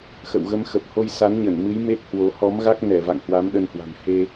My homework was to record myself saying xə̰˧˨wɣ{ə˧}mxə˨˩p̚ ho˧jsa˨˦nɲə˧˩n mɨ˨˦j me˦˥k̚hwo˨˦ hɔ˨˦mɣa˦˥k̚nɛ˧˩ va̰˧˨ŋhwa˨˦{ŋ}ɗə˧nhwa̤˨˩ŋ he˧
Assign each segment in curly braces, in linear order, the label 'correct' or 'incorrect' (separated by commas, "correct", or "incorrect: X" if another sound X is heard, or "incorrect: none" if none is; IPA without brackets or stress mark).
correct, incorrect: m